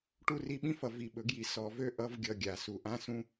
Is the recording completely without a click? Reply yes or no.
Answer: yes